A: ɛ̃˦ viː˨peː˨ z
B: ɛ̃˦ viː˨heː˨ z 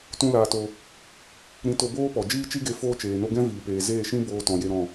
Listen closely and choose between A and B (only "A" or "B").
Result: A